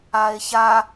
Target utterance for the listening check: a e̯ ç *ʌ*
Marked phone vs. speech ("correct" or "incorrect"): incorrect